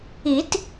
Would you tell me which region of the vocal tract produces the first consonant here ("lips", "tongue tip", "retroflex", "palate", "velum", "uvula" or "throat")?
tongue tip